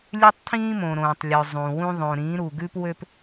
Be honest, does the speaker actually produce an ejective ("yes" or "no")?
no